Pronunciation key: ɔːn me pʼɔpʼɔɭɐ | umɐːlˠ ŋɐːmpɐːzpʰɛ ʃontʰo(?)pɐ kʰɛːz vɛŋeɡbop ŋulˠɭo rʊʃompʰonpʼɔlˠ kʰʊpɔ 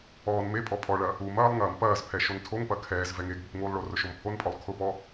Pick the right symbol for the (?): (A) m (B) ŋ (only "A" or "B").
B